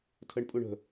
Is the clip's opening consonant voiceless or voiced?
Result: voiceless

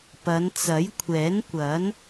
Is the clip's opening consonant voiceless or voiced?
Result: voiceless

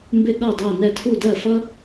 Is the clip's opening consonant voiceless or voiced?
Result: voiced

